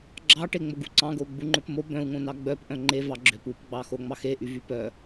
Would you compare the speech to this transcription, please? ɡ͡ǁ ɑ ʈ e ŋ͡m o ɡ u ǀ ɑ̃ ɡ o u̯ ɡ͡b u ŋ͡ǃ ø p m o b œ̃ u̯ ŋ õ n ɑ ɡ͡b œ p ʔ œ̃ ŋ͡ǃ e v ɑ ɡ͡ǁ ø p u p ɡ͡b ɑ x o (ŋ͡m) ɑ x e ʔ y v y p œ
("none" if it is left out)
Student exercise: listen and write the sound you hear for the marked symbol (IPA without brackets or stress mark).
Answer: ŋ͡m